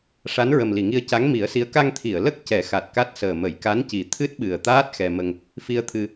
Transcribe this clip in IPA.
ʂa˧˥nɹə˨˩mli˨˩˨ŋi˧ə̯ ca˧˥ŋmi˨˩˦ə̯si˧˥ə̯ ka˧ŋt̪ʰi˨˩˨ə̯lə˦˥k̚ cɛ˨˩˦xa˨˩t̚ka˦˥t̚səː˨˩ mə˨˩˨jka˧˥nci˨˩ t̪ʰɨ˦˥t̚ɓɨ˨˩ə̯t̪aː˦˥t̚ xɛ˧ mə˧ŋ | fi˧ə̯t̪ʰɨ˧

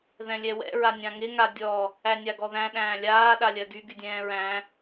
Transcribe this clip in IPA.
ðɛ̃lʲɛwɛ̰ ɹanʲãŋɪ ŋadʲɔ | ænʲaɡɔðæ̃ ɗæ̃ːlʲaː ɗalʲɜɡy ɡydʲɛ̃ːɹæ̃

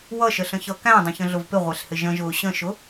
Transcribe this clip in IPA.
wʌʃəɬə̃çʌ kæ̃dˤə̃çə̃ɮʊv pɪʁʷɛɬhɪ ʒə̃ʒʊː ɕə̃ʃʊ

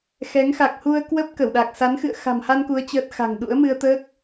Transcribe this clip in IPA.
xɛ˨˦ŋxa˨˩k̚ hu˧ə̯ kwə˦˥p̚ kə˧˩wɗa˨˩k̚ sa˨˦nxɨ̰˧˨ə̯ xa̤˨˩mha˧nku˨˦ə̯ t͡ɕəː˦˥t̚ xa̤˨˩ŋɗṵ˧˥ə̯mɨ˧ə̯ t̪əː˦˥k̚

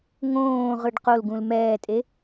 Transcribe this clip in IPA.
ŋõː ʁɯɖqolɡũl mɛːtʼe

